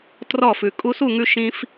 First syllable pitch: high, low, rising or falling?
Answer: falling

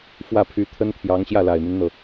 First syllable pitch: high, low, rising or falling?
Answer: falling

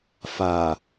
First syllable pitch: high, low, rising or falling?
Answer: low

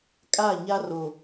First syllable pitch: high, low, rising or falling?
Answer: falling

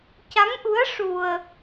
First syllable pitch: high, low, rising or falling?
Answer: rising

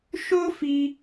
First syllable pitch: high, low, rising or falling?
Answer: high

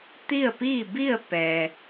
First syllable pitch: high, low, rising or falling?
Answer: falling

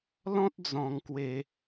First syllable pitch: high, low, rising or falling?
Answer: high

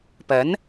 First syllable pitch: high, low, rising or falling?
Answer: rising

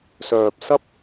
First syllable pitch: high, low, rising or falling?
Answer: low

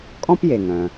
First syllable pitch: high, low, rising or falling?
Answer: high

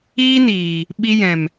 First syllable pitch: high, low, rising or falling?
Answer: high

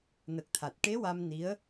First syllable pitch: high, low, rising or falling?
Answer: low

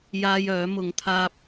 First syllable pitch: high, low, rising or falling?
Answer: high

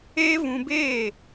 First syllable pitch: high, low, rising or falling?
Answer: high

